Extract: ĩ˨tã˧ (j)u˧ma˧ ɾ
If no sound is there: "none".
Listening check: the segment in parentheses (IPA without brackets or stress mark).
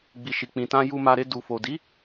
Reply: j